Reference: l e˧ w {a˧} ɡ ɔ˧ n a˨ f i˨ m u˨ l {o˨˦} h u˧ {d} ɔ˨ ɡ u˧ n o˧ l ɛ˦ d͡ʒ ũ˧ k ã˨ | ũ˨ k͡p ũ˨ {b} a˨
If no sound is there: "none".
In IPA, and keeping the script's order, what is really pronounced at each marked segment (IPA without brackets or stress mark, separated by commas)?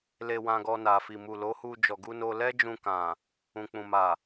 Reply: ã˧, o˨˦, d͡ʒ, m